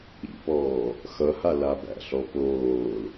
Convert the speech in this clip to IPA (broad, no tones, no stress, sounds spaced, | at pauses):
ḭ p ɔː | x ʌ h a l a b æ̰ ɬ ɔ p oː l